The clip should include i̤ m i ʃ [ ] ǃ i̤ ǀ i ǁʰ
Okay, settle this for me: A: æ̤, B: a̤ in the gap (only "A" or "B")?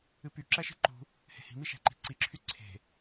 A